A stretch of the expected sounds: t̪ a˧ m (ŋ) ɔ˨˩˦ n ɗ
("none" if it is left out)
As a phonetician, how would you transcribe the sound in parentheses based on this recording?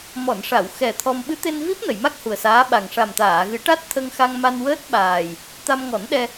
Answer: ŋ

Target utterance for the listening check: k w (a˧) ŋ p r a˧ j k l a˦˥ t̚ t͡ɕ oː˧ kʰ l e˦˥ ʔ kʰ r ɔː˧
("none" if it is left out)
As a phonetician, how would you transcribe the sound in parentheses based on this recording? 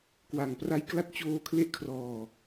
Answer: a˨˩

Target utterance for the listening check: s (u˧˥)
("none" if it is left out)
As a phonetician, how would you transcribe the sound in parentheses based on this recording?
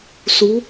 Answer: u˧˥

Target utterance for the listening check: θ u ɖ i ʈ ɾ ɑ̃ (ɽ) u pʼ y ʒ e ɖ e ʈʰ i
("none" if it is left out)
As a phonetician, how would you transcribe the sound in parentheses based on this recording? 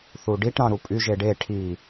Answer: ɾ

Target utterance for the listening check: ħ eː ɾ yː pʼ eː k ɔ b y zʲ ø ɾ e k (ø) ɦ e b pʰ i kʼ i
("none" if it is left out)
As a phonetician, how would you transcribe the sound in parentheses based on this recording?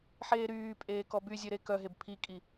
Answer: œ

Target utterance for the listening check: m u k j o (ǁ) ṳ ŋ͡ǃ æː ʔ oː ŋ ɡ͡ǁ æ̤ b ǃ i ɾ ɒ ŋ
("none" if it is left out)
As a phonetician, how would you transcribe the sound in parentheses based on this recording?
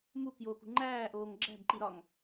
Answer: k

